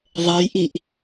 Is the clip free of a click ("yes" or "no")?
yes